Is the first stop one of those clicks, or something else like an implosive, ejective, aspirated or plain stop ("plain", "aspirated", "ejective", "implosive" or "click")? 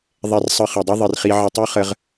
plain